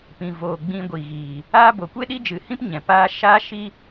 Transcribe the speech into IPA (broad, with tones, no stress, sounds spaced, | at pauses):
p ĩ˨ v oː˨ ɡ͡b ĩ˧ ɡʷ i˨ ɣ iː˨ | aː˦ b o˨ kʷ e˦ ɗ i˦ d͡ʒ ɨ˨ h ĩ˦ p ɲ ɛ̃˨ p aː˦ ʃ aː˦ ʃ i˦